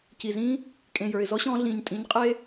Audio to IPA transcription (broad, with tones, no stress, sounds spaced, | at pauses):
c i˨ z ĩː˦ | kʼ ẽ˨ j ə˞˨ ɪ̯ z ɔ˦ ɕ ɔ̃ː˧ ɮ ĩː˨ ɲ tʼ ĩ˨˦ ɲ qʼ eː˦